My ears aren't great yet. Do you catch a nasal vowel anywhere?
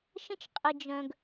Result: yes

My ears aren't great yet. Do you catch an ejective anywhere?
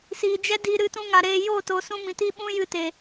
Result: no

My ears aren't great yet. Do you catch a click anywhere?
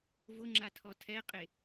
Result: yes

